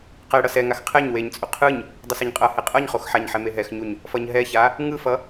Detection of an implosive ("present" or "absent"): absent